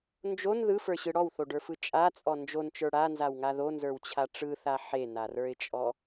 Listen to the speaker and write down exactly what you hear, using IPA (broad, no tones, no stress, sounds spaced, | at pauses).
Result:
n d͡ʒ o n ð ɯ f ə˞ ɕ ɯ ɽ ɔ w θ o ɖ ə˞ f ɯ t͡ʃʼ a t͡sʼ ɔ n d͡ʒ o n t͡ʃ ə˞ ɽ a n z a w ŋ a ð o n z ə˞ w t͡ɕʰ a ʈ͡ʂ ɯ θ a ħ e n a r ə˞ ɪ̯ t͡ʃʼ ɔ